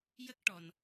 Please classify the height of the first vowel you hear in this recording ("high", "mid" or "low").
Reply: mid